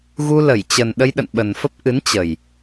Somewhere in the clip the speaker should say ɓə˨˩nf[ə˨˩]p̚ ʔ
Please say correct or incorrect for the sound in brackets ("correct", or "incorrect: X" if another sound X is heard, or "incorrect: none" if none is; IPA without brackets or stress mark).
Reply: incorrect: ə˦˥